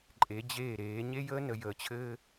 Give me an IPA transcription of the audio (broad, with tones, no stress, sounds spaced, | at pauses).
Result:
ǃʼ e˨˦ d͡ʑ eː˦˨ ɾ eː˨˦ ɲ e˦ j əː˦ n ə˨ j əː˨ t͡ɕʰ ɘː˦